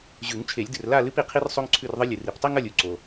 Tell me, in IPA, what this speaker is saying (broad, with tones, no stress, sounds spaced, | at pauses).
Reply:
ʑ ʉ˨˩˦ ŋ t͡ʃʰ e˨˩˦ lʲ d ɨ˨ r l a˥˨ l ɨ˥ p i˨ qʰ i˥ r sˤ o˥ ŋ ǀʰ ʉ˥˨ r ðˤ ɨ˥ lʲ ɨ˨ r i˨˩˦ p tˤ i˥ ŋ ɐ˥˨ lʲ u˨ ǀ o˨